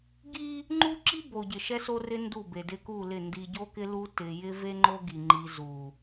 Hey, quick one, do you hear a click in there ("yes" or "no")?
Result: yes